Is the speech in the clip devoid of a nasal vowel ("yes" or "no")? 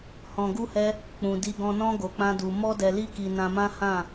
no